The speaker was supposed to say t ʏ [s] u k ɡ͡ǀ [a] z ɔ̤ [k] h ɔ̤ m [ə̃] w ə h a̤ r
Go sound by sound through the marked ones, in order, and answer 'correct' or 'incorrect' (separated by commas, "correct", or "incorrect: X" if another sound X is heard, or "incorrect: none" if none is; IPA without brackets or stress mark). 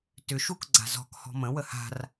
incorrect: ʃ, incorrect: a̤, correct, correct